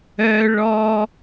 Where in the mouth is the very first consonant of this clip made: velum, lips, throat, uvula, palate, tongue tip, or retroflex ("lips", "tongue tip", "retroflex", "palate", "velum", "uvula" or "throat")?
retroflex